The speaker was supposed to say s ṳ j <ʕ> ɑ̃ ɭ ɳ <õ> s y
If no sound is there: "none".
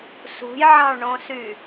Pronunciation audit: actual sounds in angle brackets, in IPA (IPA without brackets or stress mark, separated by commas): ʕ, õ